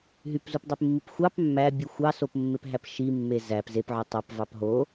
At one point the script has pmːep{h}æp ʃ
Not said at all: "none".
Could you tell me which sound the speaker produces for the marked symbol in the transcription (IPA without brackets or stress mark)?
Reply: ɦ